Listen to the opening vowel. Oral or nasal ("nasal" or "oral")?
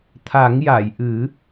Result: oral